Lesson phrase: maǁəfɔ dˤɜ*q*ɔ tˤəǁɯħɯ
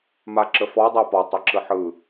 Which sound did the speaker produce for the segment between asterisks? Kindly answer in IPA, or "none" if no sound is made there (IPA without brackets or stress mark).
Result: p